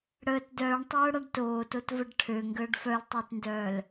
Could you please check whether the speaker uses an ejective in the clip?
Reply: no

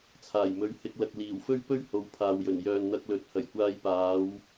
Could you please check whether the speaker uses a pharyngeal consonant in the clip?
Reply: no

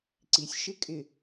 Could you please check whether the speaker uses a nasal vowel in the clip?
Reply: no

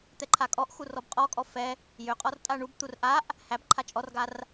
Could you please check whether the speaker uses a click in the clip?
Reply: yes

